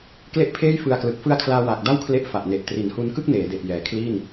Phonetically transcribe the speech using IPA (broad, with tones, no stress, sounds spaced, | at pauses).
k l e˥˩ ʔ pʰ eː˥˩ j f ɯ˧ a̯ k l ɯ˨˩ k̚ f ɯ˦˥ a̯ kʰ l aː˧ w aː˨˩ k̚ d a˥˩ w kʰ l e˦˥ ʔ f a˨˩ ʔ n e˨˩ ʔ t r i˩˦ n h u˧ n k ɯ˥˩ k̚ n eː˩˦ d e˨˩ ʔ j ɛː˨˩ kʰ l iː˥˩ n